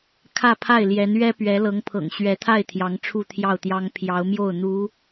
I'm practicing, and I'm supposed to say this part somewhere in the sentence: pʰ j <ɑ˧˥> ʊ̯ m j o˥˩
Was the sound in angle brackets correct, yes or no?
yes